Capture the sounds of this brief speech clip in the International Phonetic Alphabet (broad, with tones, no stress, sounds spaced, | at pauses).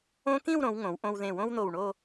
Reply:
õ˥ k ĩ˥˧ w ɾ õ˩˧ w ŋ õ˩˧ w ʔ õ˧ w ð ẽ˧˩ w õ˥ w n̪ o˧˩ w ɳ o˥˧